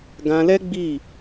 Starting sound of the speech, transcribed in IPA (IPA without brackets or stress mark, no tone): ɡ